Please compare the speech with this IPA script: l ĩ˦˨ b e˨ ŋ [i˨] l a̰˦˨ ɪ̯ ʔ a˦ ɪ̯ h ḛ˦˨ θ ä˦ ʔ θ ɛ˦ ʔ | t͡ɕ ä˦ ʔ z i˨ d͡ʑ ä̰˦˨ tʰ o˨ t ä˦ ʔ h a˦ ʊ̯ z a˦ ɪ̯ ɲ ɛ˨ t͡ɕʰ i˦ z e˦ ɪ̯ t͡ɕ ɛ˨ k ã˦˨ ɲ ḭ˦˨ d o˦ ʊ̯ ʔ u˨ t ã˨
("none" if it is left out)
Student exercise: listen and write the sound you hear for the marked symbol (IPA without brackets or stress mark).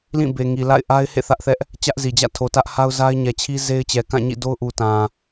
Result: i˨